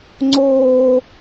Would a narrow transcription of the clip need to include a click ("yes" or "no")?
yes